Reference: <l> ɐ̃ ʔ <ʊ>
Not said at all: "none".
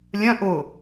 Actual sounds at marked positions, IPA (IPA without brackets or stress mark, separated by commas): lʲ, ʊ